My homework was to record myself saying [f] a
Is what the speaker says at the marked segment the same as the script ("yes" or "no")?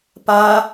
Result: no